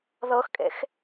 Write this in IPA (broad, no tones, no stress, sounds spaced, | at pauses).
ð ɤ x kʼ ḛ x